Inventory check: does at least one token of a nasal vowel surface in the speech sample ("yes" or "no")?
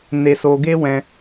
yes